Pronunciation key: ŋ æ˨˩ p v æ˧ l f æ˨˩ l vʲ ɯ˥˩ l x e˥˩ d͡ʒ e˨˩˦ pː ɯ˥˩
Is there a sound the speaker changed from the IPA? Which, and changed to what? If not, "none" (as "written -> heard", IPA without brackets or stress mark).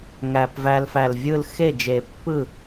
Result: none